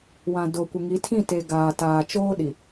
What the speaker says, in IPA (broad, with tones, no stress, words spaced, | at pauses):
wã˨ do˨kʷɪ˨ ŋi˨˦tʰĩ˦˨te˨ ɡaː˨taː˨t͡ʃoː˦ ɗi˨